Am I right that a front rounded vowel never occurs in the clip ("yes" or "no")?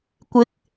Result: yes